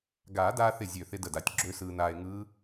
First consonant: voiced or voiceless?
voiced